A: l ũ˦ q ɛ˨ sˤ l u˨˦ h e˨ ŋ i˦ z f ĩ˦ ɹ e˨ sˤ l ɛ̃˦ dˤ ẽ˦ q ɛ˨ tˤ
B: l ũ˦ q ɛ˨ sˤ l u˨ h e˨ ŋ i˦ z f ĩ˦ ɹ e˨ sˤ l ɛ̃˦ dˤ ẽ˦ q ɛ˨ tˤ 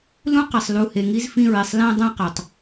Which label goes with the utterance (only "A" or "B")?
B